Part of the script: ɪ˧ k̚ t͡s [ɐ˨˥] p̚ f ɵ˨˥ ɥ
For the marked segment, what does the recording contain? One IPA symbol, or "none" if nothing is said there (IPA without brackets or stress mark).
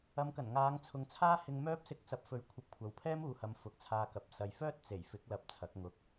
ɐ˨˥